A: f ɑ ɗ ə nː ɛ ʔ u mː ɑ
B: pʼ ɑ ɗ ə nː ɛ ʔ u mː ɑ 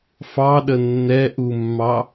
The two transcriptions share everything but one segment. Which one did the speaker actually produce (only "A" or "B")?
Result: A